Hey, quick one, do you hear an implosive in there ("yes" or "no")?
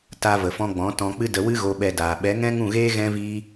yes